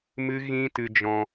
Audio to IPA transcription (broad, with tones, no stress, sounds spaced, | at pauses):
m ɨ˦ ɣ ĩ˦ t ɨ˧ d͡ʒ ɔ̃˧